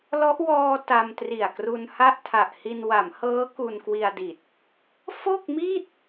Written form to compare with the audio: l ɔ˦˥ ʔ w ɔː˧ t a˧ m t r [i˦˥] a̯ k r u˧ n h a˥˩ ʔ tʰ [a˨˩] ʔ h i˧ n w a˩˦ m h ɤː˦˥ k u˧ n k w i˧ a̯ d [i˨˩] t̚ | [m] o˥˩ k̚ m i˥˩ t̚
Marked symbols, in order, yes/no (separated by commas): no, yes, yes, no